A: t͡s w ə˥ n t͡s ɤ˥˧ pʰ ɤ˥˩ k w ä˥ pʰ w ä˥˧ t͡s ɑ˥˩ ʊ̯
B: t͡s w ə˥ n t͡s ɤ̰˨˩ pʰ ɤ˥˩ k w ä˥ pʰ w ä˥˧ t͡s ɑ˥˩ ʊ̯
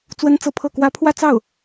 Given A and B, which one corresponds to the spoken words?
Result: A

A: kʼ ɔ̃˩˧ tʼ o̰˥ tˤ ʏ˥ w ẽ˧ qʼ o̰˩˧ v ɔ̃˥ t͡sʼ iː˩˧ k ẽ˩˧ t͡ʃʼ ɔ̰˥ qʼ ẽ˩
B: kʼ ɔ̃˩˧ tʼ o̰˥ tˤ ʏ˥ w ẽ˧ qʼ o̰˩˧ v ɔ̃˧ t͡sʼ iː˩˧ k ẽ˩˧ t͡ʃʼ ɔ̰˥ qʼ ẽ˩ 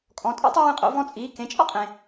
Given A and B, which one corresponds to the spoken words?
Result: B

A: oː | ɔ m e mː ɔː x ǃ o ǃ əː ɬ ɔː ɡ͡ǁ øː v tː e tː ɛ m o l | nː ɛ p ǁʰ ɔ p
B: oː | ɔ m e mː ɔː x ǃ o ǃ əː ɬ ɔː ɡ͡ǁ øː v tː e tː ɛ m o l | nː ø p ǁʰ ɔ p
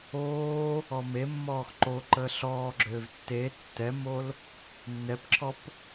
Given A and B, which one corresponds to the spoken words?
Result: A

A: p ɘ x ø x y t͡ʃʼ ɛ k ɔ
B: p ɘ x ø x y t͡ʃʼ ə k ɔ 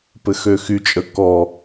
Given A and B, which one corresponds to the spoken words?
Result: B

